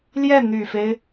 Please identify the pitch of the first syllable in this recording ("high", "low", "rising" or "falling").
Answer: falling